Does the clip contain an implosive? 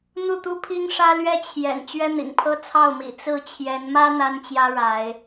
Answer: no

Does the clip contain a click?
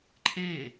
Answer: yes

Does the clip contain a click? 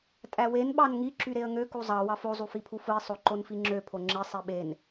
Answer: yes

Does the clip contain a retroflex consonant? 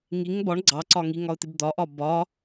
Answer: yes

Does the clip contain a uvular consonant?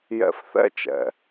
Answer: no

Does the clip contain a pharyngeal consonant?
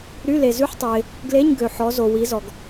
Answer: yes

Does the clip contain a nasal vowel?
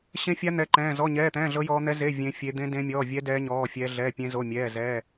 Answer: yes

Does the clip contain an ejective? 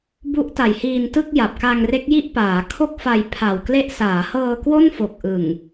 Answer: no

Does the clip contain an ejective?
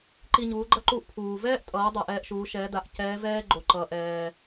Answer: yes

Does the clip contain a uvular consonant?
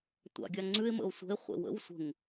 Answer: yes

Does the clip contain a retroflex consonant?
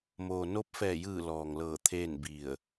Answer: no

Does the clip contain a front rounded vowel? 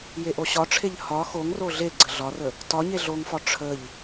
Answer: no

